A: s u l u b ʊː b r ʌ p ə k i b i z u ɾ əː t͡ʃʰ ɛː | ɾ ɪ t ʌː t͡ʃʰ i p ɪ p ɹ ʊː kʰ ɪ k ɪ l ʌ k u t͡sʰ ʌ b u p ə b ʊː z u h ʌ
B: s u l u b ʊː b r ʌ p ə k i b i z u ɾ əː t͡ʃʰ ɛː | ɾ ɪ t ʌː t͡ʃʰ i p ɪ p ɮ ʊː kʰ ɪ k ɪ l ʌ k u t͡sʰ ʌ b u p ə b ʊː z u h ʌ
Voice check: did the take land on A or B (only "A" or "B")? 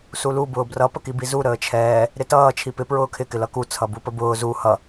A